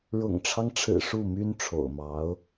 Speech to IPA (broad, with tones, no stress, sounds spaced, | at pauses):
ɻ ʊ̰˨˩ ŋ ʈ͡ʂʰ ɑ˦ ŋ ʈ͡ʂʰ ɻ̩˨˩ ʂ u˥˩ m y˥ n ʈ͡ʂʰ o̰˨˩ ʊ̯ m ɑ˧˥ ʊ̯